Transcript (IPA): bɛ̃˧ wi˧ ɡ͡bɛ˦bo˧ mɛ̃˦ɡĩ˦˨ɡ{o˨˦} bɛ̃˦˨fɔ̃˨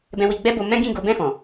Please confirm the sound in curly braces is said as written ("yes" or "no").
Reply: yes